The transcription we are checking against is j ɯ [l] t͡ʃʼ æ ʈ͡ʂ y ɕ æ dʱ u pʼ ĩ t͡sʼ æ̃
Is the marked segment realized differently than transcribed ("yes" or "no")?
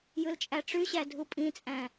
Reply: no